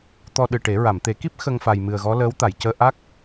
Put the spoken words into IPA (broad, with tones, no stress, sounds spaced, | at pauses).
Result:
t̪ ɔ˧ ɗ ɨ˨˩ ʈ e˨˩˦ ɹ a˨˩˨ m t̪ e˨˩˦ k i˦˥ p̚ x ə˧ ŋ f a˨˩ j m ɨ˨˩ ə̯ ɣ ɔ˧˥ l əː˧˥ w t̪ a˨˩˨ j c əː˧ ʔ a˦˥ k̚